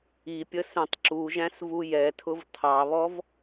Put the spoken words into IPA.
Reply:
i pʲ ə s ɛ̃ tˤ ǁ u ʒ æ̃ s v u j ɛ tʰ ʊ v tʰ ɑ β ɔ v

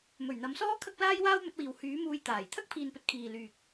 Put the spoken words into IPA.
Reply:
m ɵ˨˩ ɥ n̪ ɐ˨˧ m s ɔː˥ kʰ ɐ˥ k̚ l aː˥ j w aː˥ w m ɵ˨˥ t̚ w iː˨ w h yː˨˥ m uː˧ j t̪ aː˨˩ j t̪ʰ ɐ˥ k̚ pʰ iː˨ n p ɵ˨ t̚ kʰ iː˨ l yː˨ k̚

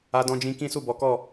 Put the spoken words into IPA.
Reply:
a˧ d ɔ̃˧ d͡ʒ ĩ˧ k ĩ˦ s u˦˨ b ɔ˨˦ k ɔ˦˨

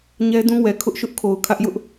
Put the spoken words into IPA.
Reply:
ɲ ɛ˦ d ũ˦ w ɛ˨ kʰ ʊ˦ ʔ ʃ ʊ˦ ʔ kʰ o˨ ʊ̯ kʰ ä˦ ʔ j ʊ˦ ʔ

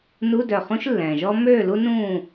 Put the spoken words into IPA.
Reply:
n u˧˥˧ d œ˧˩ χ ũ˦˥ ʃ lː ɛ̃ː˩ ʒ ɔ˦˥ m øː˥˨ l u˦˥ n ũː˥˨

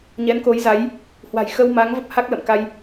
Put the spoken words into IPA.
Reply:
ɲ ɛ˨˦ n k o˨˦ j z a˨˦ j | h w a̤˨˩ j x ə˧ w m a˨˦ ŋ v ə˦˥ p̚ h a˦˥ k̚ l ə̰˧˨ m k a˧ j

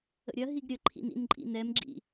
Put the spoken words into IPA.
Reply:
ə̰ ɾʲ ɐ ɦ i ɡ ɾʲ ə ǃʰ ḭ n ḭ n ǃʼ ḭ n ɛ m ɡ͡ǁ ḭ

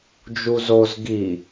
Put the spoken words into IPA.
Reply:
d͡ʒ u z o z ɡ i

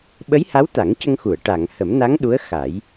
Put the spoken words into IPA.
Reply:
ɓ ə˧˥ j h a˧˥ w t̪ a˨˩˦ ŋ c ə˧ ŋ x u˨˩˨ ə̯ ʈ a˨˩˨ ŋ h ə˨˩˦ m n a˧˥ ŋ ɗ u˧˥ ə̯ x a˨˩˦ j

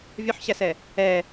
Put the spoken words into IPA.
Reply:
vʲ o ħ ɕ æ s ɛ | ɛ

